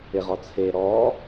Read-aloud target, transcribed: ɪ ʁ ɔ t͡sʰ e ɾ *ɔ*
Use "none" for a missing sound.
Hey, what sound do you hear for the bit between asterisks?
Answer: ɔ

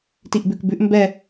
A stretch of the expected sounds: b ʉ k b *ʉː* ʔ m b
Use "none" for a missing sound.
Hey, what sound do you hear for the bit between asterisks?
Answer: ʉ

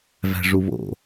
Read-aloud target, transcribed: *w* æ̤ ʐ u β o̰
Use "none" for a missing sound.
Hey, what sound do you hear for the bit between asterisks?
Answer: v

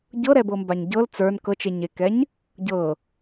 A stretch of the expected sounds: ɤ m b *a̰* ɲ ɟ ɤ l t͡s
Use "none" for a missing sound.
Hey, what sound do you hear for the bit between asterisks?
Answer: a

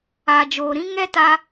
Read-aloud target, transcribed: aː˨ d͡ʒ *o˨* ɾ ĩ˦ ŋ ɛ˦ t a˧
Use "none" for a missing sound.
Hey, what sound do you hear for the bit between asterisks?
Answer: oː˨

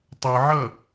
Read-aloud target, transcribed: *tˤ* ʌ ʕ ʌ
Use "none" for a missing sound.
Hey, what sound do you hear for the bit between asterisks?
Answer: tˤ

